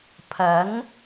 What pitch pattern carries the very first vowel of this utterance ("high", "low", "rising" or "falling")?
rising